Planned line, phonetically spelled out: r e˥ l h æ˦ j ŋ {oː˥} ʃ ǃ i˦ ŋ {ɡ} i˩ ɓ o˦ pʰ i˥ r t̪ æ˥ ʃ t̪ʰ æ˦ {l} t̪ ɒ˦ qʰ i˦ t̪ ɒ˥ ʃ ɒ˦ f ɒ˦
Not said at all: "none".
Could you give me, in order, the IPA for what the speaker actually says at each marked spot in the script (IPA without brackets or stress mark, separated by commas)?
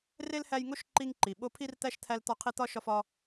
o˥, ǃ, l